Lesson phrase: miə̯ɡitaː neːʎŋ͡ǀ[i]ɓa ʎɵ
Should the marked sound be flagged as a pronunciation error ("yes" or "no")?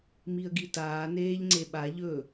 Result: yes